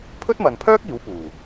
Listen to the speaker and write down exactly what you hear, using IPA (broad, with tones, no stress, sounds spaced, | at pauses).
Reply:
pʰ ɵ˥ t̚ m ɐ˨ n pʰ œː˥ k̚ iː˨˥ w p uː˨˩